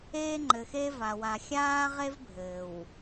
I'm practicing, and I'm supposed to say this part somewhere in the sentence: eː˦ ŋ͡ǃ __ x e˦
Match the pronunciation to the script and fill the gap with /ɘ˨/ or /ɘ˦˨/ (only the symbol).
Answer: ɘ˨